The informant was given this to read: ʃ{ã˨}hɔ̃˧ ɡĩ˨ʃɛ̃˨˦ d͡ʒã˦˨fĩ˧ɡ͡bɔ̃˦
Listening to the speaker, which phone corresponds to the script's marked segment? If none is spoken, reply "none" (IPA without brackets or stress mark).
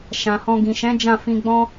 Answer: ã˨